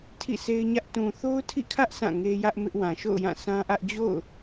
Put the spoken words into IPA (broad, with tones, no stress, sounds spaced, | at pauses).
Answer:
tʰ ḭ˦˨ sʰ e˦ ɪ̯ ɲ ä˦ ʔ t ũ˨ θ o˦ ʊ̯ tʰ ḭ˦˨ kʰ ä˦ ʔ s ã˦˨ ŋ e˦ j ä˦ ʔ m ɪ˦ ʔ w ã˨ ʃ o̰˦˨ ʊ̯ j ã˦˨ s ã˦ ʔ ä˦ ʔ d͡ʑ o̰˦˨ ʊ̯